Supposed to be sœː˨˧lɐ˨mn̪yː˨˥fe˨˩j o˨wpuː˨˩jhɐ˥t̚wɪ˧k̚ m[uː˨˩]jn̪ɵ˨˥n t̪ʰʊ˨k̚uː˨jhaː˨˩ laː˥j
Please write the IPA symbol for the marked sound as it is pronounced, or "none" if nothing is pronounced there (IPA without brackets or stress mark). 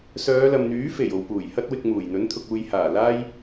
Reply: uː˨˩